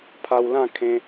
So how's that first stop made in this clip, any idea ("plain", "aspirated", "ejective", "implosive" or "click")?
aspirated